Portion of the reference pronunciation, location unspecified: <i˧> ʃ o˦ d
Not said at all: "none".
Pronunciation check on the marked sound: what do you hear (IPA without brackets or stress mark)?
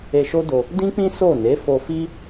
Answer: e˧